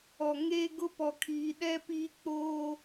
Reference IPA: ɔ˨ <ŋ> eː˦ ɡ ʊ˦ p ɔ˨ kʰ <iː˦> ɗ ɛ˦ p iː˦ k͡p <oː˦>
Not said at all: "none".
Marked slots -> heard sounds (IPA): ŋ, iː˨, oː˦

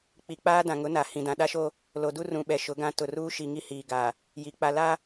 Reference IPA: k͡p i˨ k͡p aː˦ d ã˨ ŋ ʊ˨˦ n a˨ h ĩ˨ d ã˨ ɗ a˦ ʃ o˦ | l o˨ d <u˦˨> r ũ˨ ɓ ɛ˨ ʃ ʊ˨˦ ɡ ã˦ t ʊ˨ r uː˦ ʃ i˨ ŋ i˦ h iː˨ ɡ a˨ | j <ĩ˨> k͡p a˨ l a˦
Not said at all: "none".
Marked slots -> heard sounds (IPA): u˦, i˨

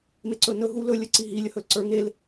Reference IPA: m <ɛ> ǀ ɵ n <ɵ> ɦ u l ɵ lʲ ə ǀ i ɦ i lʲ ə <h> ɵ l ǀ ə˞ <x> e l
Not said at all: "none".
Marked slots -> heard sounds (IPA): e, ɵ, h, ŋ

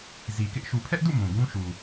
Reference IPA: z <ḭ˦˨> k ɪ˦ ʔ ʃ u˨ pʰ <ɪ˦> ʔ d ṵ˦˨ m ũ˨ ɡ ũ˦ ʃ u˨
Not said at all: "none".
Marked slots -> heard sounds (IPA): i˨, ɛ˦

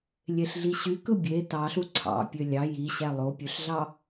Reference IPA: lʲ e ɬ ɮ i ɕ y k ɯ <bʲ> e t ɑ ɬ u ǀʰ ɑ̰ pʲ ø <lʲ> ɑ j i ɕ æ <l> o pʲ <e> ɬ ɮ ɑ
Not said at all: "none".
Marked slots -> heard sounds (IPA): bʲ, lʲ, lˠ, ø

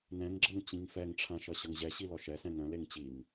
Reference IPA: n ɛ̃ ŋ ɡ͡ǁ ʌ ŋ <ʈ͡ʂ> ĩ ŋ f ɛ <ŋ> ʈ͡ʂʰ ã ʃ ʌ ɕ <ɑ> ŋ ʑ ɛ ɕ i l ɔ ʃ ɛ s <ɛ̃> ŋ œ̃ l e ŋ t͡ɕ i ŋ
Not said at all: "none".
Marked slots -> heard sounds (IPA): t͡ɕ, ŋ, ʌ, ɛ̃

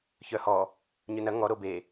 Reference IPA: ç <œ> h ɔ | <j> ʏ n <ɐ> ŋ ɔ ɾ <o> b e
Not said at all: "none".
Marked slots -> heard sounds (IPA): œ, ɲ, ɐ, o

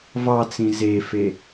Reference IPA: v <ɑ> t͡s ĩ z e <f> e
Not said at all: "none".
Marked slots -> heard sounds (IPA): ɑ, f

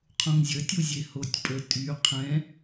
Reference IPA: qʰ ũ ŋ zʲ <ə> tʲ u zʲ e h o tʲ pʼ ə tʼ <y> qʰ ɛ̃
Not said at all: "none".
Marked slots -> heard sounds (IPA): ə, y

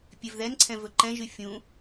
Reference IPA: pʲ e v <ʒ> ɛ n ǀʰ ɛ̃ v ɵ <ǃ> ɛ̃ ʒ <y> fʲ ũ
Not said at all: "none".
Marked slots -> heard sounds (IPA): ð, ǃ, y

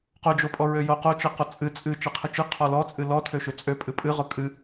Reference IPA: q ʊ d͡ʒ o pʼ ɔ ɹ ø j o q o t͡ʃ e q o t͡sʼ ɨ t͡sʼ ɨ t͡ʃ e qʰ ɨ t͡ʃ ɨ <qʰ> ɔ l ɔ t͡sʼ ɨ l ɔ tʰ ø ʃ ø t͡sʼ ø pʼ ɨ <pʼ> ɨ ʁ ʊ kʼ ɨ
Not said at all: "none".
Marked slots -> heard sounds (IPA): qʰ, pʼ

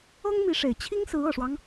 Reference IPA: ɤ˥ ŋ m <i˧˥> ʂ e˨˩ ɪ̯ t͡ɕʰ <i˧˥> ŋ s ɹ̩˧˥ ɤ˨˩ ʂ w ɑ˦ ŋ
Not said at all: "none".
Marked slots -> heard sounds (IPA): i˧˥, i˥

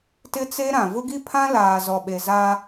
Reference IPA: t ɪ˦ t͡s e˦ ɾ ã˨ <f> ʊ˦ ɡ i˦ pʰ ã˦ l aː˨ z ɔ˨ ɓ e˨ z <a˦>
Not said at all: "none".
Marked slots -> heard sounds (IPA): v, a˦

